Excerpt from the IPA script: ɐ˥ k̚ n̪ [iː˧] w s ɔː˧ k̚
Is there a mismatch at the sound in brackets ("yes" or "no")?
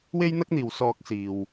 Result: yes